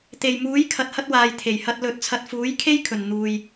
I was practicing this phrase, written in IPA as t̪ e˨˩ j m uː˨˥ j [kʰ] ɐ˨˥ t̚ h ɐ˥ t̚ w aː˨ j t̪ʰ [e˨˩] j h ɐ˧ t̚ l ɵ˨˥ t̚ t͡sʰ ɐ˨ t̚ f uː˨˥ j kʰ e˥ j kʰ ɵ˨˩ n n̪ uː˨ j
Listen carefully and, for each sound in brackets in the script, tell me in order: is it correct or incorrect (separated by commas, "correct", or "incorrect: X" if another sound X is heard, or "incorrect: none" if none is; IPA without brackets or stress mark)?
correct, correct